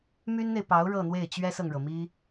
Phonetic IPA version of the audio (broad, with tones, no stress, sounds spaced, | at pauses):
m y˥ n n̪ e˨ ɪ̯ p ɑ˧˥ ʊ̯ ɻ ɤ˥˧ n̪ w e˥˩ ɪ̯ t͡ɕ ɥ ɛ˥ s ɤ˨ ŋ ɻ ɤ˩ m i˥